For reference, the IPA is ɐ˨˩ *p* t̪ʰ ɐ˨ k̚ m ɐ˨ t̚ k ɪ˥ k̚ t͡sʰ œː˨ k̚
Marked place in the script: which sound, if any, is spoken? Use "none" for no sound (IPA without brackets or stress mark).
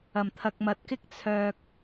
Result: m